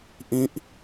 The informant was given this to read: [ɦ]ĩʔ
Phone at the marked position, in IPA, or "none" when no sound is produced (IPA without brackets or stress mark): ʔ